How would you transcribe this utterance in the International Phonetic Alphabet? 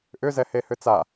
ʔ ʏ z ɛ h e h ʏ t͡s a

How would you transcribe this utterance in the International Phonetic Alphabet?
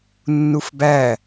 nː u f b æ

